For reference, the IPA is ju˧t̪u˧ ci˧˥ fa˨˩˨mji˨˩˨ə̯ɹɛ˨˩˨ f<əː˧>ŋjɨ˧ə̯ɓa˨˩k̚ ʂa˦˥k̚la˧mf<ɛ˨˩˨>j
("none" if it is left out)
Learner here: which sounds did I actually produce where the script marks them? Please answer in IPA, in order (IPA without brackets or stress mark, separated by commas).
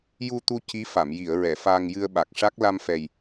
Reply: aː˧, ɛ˨˩